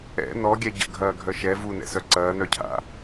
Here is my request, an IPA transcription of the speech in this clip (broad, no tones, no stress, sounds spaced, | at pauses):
ɛ̰ n ɔ ɡʲ ɛ ɟ ə̰ ɡʱ ɐː ɡʱ œ ʃ ɛ v u n ɛ̰ s œ ǀ ɐː n œ cʰ a̰